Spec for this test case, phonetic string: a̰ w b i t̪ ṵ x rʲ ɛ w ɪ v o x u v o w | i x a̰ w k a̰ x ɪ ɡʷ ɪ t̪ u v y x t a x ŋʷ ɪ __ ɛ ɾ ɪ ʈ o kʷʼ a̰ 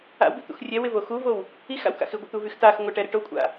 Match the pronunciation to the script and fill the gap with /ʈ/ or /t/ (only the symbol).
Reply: ʈ